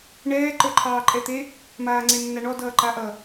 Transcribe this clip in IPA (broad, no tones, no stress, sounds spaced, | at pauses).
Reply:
ɳ ɛː ǃ ə˞ ǃʰ ɑː ǃʼ ɛ t̪ e | m aː ŋ͡ǀ e nː a ɳ ɔ d ʌː ǃ a ʔ ʌ